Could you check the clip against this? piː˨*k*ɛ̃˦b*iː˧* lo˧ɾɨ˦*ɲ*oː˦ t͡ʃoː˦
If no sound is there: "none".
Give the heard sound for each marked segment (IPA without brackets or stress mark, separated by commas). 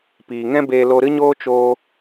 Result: ŋ, eː˧, ɲ